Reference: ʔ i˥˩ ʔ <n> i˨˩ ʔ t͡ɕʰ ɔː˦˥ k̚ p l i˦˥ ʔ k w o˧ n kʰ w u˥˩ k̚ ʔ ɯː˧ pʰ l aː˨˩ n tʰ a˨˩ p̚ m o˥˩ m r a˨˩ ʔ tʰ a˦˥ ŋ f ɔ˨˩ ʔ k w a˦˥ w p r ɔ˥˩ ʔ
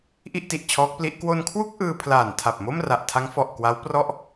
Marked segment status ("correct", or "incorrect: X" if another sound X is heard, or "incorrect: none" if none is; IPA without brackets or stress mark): incorrect: t